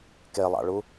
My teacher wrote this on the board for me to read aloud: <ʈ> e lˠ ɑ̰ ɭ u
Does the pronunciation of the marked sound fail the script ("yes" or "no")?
yes